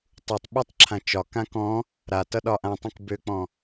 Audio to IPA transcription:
tˤ u tˤ ɓ i tˤ ǁʰ ã t͡ʃ ɒ k ã k ɔ̃ | ɾ a t ʌ ɗ ɒ ʔ ã tˤ ũ k b ø k͡p ɔ̃

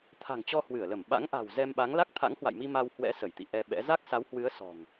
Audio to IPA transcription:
t̪ʰ a̤˨˩ ŋ t͡ɕ ɔ˧ h w ɨ˧˩ ə̯ l ə˧˩ m ɓ a̰˧˥ ŋ ʔ a̤˨˩ w z ɛ˧ m ɓ a˨˦ ŋ l a˦˥ k̚ t̪ʰ a̰˧˥ ŋ h w a̰˧˨ j m i˧ m a˧ w h w ɛ̰˧˥ s ə˧˩ j t̪ ḭ˧˨ ʔ ɛ˧ ɓ ɛ̰˧˥ z a˦˥ k̚ s a˨˦ w h w ɨ˨˦ ə̯ s ɔ̤˨˩ ŋ

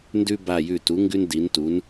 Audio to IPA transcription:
n d ʉ˥ b a˧˩ j ʉ˧˩ t u˩˥ ŋ ɡ ʉ˥ n d i˩˥ n t u˩˥ n

